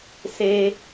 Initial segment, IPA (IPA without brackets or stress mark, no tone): s